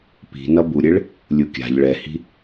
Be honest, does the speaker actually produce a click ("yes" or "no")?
no